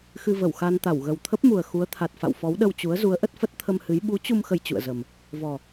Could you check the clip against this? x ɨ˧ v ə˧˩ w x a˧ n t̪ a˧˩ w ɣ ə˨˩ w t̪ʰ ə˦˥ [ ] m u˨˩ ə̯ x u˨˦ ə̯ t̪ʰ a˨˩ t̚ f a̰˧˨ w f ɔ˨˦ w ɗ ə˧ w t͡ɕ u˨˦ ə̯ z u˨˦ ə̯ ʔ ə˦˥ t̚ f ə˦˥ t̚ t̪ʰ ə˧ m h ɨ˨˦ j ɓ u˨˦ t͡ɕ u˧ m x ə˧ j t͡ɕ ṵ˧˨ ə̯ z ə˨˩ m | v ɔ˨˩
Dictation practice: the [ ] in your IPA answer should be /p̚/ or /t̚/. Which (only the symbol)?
p̚